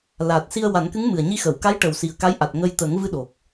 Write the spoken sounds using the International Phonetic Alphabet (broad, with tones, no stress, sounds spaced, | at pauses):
l a˨˩ t̚ s i˧ ə̯ w a˨˩˦ n k ɨ˧˥ ŋ m ɨ˨˩ ə̯ ɲ i˧ x ə˨˩˨ w k a˧˥ j ʈ ə˨˩ w s i˨˩ ə̯ k a˧˥ j ʔ a˨˩ t̚ ŋ ə˧ j t̪ ə˨˩˦ ŋ v ɨ˧ ɗ o˨˩ k̚